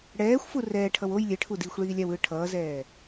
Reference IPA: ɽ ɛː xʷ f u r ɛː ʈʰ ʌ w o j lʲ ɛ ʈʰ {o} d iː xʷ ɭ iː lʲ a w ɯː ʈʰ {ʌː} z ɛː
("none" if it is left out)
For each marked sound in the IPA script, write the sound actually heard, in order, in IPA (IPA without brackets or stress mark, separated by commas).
u, ʌː